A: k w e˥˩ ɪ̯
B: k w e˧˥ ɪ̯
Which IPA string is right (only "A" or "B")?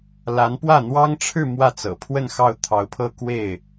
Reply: A